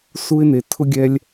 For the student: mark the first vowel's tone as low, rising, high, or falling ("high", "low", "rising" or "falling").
high